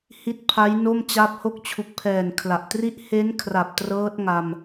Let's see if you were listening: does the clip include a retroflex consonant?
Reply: no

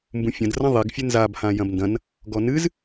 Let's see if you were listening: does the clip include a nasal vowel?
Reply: yes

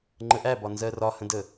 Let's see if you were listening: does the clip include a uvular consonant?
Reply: no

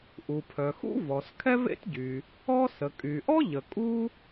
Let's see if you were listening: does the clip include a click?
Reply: no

